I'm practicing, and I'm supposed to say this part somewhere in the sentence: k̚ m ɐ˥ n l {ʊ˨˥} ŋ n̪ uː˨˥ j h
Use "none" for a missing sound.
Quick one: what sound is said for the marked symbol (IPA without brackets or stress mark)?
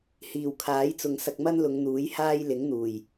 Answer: ʊ˨˧